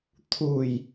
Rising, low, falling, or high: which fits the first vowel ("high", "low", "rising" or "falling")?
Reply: low